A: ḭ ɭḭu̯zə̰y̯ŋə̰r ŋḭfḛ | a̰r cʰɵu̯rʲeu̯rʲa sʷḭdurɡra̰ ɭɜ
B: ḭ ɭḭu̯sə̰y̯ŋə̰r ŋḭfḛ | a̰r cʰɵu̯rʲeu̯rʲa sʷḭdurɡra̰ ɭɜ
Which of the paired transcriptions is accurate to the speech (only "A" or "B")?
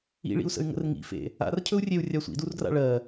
B